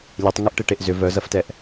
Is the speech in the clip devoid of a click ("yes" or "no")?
yes